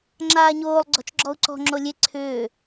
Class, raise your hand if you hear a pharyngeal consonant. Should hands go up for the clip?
no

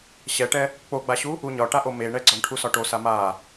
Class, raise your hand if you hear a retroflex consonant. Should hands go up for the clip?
yes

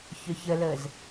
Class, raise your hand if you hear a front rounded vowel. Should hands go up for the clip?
yes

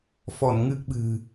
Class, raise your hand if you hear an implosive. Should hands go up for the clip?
yes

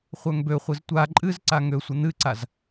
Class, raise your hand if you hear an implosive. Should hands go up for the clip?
no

